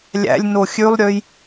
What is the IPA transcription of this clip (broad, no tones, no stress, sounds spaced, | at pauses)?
lʲ æ̰ lʲ n o xʲ ʉ lˠ ɾʲ ø j